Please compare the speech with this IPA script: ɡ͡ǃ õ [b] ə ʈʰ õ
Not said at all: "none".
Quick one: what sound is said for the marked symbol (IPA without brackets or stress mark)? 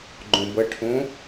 b